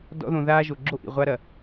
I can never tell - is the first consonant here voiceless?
no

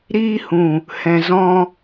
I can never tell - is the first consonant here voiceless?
no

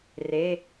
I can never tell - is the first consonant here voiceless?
no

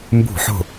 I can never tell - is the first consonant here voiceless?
no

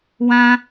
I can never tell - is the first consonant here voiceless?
no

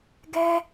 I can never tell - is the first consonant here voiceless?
no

